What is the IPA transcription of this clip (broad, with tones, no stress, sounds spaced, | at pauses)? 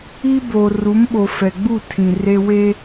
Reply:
iː˦ b oː˨ r u˨˦ m ɓ o˨ f ɛ˨ ɡ͡b u˦˨ tʰ ĩ˨ r e˦ w e˦